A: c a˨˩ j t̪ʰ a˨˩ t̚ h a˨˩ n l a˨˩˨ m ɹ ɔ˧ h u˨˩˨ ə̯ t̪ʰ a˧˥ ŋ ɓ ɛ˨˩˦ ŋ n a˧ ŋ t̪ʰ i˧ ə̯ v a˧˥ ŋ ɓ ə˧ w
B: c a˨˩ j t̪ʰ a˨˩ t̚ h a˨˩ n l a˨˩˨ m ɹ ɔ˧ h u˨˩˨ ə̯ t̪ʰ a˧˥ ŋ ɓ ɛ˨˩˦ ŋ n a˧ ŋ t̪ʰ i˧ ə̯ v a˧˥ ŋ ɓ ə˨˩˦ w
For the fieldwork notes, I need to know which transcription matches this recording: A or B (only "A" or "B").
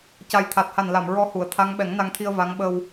A